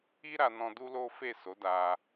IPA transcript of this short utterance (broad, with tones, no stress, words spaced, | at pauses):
i˦ɾa˧nɔ̃˧ du˦lo˦fe˦˨ so˨˦da˧